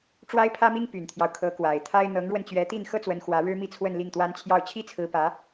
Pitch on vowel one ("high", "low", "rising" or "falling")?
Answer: high